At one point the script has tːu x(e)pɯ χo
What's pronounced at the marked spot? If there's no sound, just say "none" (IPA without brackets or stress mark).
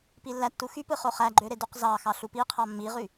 y